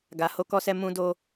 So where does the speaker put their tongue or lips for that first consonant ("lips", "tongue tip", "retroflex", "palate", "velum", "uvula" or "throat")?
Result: velum